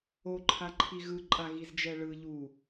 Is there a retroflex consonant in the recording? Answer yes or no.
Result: yes